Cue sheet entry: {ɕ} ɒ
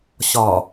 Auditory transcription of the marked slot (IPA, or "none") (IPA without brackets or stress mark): ɕ